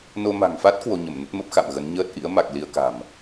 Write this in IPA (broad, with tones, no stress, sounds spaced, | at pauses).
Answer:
n o˧ m a̤˨˩ ŋ f a˦˥ t̚ k w o˧ ɲ ə˧˩ m n ə˦˥ t̚ m ə˦˥ p̚ x a̰˧˨ m ɣ ə˨˦ n ɲ əː˦˥ t̚ ʔ ḭ˧˥ ə̯ m a˨˩ k̚ l i˧ ə̯ k a̤˨˩ m